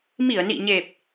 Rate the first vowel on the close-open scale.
close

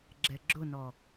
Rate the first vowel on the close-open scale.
mid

